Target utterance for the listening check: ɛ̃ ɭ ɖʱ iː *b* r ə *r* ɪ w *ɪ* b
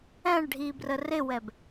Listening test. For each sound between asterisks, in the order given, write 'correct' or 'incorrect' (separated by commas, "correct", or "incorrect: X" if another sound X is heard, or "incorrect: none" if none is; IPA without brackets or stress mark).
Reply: correct, correct, incorrect: ɛ